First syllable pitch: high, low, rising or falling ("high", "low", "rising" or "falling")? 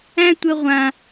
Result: high